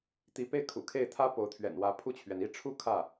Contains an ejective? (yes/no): no